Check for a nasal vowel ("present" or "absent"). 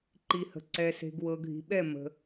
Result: absent